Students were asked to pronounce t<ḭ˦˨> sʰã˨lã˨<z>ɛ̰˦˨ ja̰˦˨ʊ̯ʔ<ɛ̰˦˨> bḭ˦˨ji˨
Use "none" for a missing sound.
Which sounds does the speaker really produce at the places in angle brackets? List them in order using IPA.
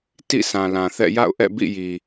ḭ˦˨, θ, ɛ̰˦˨

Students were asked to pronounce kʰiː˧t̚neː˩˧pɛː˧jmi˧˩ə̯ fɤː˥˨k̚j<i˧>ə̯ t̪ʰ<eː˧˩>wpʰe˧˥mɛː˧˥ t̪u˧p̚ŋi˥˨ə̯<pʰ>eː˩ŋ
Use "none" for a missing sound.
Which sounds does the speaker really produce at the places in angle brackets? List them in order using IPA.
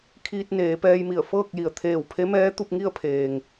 i˩, eː˧˩, pʰ

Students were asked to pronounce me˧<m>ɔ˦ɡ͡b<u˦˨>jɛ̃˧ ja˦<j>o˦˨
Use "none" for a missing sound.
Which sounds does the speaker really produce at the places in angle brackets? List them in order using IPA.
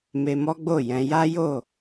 m, o˦˨, j

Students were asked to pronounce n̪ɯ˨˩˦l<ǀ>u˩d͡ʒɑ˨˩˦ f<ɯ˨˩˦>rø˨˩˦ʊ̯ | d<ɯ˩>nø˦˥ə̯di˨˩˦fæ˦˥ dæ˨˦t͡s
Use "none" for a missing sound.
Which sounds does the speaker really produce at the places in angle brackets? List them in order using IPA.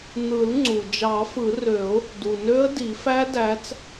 ŋ͡ǀ, ɯ˨˩˦, u˩

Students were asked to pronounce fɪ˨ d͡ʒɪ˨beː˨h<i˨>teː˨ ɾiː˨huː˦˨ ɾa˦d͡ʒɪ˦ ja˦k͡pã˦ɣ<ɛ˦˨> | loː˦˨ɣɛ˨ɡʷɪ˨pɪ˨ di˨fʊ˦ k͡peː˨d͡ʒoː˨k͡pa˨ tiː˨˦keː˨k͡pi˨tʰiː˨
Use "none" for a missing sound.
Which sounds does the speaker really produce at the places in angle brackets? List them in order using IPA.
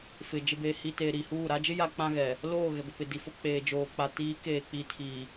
i˨, ɛ˨

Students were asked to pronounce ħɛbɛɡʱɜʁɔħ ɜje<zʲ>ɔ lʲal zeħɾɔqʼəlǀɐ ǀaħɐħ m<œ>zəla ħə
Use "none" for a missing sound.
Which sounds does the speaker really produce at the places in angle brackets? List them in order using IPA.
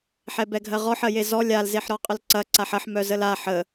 z, œ

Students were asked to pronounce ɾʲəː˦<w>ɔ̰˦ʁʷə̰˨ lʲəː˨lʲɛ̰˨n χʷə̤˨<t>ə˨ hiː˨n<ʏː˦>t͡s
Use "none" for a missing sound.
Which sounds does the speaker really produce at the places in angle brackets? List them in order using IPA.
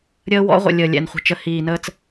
w, t͡ʃ, əː˦

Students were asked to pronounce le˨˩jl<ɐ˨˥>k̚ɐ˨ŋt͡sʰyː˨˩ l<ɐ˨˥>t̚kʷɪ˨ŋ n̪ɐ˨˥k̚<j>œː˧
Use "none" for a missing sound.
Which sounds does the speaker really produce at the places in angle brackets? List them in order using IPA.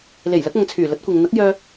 ɐ˨˥, ɐ˨˥, j

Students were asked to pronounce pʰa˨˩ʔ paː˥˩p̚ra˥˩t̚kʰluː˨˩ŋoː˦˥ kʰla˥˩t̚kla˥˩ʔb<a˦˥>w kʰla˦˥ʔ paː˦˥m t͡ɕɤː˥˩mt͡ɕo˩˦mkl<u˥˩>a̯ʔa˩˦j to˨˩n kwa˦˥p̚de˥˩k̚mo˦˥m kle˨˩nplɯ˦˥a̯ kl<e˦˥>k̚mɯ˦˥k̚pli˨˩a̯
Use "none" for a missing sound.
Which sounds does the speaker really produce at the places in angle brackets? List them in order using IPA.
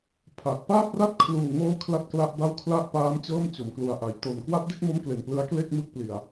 a˥˩, u˨˩, e˥˩

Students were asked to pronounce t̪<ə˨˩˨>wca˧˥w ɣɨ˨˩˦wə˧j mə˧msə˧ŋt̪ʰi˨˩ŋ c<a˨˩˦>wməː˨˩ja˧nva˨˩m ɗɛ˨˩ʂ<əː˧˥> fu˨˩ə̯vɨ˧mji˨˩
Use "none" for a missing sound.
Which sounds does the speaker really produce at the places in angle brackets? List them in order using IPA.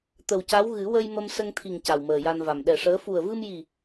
ə˨˩, a˨˩, əː˧˥

